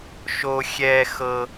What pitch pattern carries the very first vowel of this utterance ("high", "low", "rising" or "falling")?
high